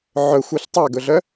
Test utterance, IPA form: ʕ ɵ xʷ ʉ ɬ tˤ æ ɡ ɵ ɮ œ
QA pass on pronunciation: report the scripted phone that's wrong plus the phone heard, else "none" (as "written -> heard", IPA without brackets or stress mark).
none